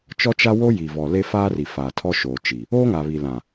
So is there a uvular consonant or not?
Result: no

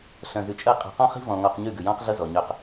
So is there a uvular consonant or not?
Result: yes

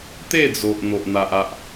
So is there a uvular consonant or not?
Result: no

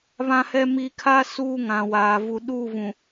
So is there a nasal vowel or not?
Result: yes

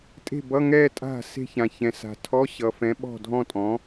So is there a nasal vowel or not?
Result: yes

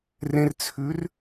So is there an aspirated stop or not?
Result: yes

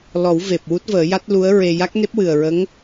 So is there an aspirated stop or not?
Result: no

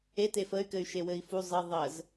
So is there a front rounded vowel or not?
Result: yes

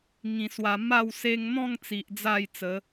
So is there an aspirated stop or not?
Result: no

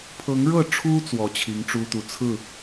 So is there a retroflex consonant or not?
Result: yes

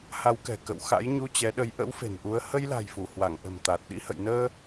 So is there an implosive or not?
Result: yes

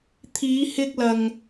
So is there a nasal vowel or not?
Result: no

